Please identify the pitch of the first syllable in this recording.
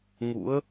rising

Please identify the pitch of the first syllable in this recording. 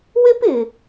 high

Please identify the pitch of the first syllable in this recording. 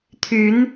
rising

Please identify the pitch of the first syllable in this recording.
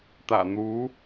low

